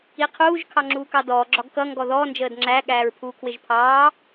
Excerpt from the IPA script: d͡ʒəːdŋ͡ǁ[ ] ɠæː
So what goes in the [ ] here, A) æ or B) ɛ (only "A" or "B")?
A